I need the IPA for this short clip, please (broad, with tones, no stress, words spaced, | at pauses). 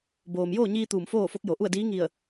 boː˩mjoː˥˨ɲiː˧ t̪uː˧˩mfoː˥˨fo˧˥k̚ jo˩ʔu˥˨ə̯diː˧˥ ŋi˧˩ə̯